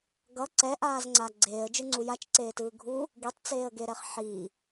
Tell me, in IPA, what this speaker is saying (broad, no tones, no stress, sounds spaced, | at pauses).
ɡ ʌ ǀ ɛ ʔ aː z ŋ͡ǀ a ɡ͡ǀ eː ə̯ d͡ʒ ɯ ŋ͡ǀ u j a t͡ʃ ǀ eː t ɯː ɡʱ u | ɡ i tˤ t͡s eː ə̯ ɡ e ɾ ɛ χ ħ i